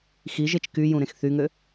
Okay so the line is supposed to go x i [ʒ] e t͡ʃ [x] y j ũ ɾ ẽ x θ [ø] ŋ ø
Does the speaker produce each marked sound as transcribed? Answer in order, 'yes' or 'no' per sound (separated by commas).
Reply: yes, no, no